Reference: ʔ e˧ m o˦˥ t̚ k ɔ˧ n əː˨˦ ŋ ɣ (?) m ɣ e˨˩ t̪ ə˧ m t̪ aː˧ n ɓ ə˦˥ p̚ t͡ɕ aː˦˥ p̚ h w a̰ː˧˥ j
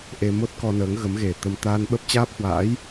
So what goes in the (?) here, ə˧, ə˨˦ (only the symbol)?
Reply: ə˨˦